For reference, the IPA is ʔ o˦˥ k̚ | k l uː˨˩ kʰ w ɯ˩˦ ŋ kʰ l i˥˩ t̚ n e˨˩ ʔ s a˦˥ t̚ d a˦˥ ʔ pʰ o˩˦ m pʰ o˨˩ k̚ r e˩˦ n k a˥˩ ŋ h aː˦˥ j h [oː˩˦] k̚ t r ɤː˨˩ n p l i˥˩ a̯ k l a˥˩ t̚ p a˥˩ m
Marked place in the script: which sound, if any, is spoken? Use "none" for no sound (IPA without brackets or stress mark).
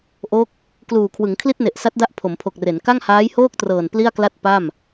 oː˥˩